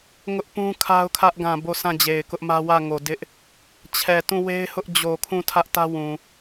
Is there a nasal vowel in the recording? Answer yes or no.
yes